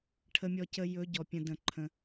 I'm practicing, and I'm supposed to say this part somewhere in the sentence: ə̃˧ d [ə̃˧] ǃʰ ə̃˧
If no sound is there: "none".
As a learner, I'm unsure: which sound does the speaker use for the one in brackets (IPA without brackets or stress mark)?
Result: ə̃˧